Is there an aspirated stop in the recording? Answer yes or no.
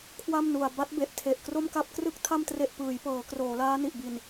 yes